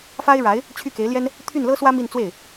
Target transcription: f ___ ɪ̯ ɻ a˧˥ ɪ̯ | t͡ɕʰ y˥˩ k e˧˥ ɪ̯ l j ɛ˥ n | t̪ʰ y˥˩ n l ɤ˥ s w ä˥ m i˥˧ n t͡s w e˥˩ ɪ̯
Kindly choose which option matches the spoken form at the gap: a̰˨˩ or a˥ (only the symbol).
a˥